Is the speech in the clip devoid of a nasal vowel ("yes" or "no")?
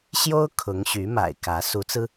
yes